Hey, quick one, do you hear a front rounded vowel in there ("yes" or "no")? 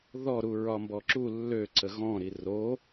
yes